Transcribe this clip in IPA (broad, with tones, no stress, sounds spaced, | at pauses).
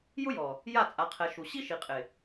j ʊ˦ j ɔ˨ | j a˦˨ t͡sʼ a˨ qʰ ɛ˨ ʃ u˨ ɕ i˦ ʃ i˨ qʼ ɪ˨